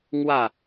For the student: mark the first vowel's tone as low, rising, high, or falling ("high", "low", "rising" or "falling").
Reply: falling